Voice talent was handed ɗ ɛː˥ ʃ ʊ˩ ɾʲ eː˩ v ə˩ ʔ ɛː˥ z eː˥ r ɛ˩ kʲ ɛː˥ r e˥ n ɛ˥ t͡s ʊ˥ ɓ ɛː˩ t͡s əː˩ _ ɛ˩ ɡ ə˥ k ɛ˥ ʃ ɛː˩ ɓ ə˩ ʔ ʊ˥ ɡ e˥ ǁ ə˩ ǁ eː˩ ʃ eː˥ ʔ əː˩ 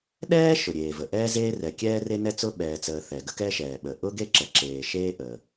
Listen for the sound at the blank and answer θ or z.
θ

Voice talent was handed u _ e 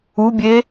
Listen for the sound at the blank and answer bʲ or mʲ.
bʲ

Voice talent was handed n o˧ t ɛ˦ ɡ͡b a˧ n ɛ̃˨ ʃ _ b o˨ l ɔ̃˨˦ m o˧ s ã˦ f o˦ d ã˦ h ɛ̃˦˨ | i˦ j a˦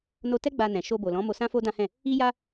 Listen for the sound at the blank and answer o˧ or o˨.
o˧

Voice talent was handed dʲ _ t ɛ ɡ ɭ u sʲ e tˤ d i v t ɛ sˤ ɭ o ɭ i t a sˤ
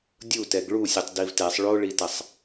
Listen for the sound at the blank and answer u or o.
u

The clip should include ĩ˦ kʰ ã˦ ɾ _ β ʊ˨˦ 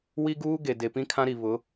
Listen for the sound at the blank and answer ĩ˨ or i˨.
i˨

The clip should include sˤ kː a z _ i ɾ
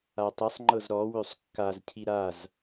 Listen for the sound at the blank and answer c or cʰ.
cʰ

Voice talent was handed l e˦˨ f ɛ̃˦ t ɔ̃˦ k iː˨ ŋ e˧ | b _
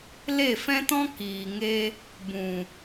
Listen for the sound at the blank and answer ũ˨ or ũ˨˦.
ũ˨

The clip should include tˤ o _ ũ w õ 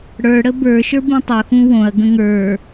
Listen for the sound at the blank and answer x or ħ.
x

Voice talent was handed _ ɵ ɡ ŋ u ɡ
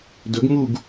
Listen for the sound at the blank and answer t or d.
d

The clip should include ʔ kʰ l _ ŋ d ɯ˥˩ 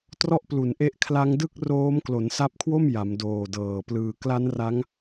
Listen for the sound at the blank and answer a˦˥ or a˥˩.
a˦˥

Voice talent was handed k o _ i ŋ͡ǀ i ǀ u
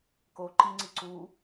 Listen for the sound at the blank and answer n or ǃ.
ǃ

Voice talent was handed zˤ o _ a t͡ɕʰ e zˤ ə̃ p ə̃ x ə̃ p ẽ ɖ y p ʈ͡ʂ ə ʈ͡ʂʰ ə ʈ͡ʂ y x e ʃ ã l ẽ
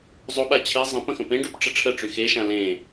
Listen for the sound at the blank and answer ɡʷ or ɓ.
ɓ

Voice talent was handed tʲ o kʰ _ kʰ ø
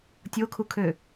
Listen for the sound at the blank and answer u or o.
u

